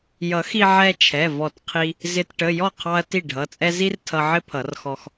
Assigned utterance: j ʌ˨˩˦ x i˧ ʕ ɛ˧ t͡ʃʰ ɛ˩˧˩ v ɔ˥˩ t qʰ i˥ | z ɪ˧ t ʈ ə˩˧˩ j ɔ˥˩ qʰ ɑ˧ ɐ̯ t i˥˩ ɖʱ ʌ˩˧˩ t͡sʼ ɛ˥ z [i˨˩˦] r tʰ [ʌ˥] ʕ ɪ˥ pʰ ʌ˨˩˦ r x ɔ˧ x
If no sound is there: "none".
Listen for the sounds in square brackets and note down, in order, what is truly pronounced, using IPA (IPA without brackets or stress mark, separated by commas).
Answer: i˥, ʌ˧